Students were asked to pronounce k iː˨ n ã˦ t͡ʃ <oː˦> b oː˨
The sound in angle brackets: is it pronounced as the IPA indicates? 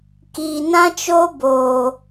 yes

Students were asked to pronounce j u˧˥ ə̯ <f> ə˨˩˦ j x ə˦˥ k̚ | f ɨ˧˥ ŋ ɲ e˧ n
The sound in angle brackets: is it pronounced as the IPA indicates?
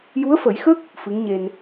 yes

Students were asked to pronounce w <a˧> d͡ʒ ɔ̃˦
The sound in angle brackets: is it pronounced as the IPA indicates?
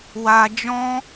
yes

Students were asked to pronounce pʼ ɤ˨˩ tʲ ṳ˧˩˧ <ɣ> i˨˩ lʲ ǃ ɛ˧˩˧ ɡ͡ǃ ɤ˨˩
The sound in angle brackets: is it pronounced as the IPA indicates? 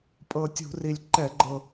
no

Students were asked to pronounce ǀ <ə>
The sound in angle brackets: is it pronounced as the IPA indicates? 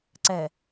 no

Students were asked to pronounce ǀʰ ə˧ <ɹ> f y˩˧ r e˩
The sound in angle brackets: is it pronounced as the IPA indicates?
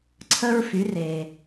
yes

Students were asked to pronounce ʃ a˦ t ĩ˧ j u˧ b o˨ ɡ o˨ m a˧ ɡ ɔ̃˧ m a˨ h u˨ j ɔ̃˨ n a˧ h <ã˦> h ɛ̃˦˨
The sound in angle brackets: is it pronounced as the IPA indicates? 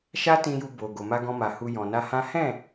yes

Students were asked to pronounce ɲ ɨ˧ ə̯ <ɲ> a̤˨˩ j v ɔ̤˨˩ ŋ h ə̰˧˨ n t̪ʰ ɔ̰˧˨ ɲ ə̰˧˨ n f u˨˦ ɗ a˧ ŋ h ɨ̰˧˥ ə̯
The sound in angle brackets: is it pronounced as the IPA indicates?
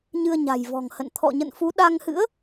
yes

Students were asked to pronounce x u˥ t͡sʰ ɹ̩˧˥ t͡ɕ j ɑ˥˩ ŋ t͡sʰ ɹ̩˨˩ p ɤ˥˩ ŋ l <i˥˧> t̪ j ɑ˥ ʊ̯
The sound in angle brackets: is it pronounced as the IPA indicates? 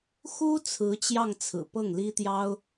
no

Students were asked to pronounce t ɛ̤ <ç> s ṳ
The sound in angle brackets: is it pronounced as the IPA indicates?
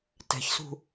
yes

